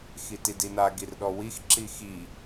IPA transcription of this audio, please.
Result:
xitidina ɡirɗɔwix ǁixi

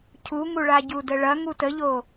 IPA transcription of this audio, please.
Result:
cʰuŋuɭa ɟudəɭɐ ŋutəʎo

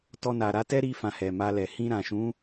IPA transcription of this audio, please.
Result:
tɔ˧na˨ ɾa˨˦tɛ˦ɾi˧ fã˧hɛ˨ma˧lɛ˨ hĩ˧ɾã˨ʃũ˨˦

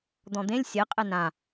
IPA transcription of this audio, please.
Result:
d̪ɔ̃d̪ẽlʲ sʲɛ qʼɛnã

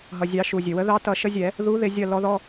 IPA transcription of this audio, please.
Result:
ɦʌ˩zʲɑ˨˩˦ ʃu˩zʲɘ˩wə˧˥ðɑ˧˥ tʌ˨˩˦ʃə˧˥zʲɛ˨˩˦ | ðu˧˥ðɪ˨˩˦ zʲʌ˦˨lɔ˧˥ðɔ˧˥˧

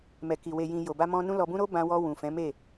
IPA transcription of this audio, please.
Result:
mɛ˨ki˨ we˨jĩ˨ jo˨ba˧mɔ̃˧ nũ˦lɔ˧bũ˦ ɾo˦bã˧wɔ˧ wũ˨fɛ̃˨˦me˦˨

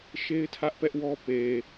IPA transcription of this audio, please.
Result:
ʃe˦ɪ̯tʰä˦ʔpɛ˦ʔwɔ˦ pe˨

